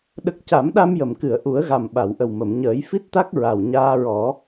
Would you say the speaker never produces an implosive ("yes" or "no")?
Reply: no